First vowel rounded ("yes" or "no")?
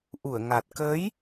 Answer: yes